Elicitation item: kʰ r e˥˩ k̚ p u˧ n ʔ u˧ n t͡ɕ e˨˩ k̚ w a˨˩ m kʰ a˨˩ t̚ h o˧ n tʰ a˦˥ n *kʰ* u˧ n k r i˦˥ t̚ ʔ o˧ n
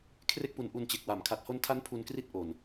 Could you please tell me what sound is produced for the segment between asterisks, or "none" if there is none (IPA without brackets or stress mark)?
pʰ